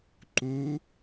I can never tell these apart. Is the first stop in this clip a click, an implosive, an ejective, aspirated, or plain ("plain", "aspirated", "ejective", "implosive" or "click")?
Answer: click